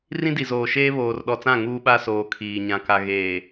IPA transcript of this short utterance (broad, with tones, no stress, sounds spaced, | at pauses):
r ĩ˦ d i˨ z oː˨ ʃ eː˦ β oː˨ r ɗ ɔ˨ t͡s ã˦˨ ŋ uː˦ ɓ a˦ s oː˨ kʰ iː˨ ɲ ã˨ k a˨ ɣ eː˨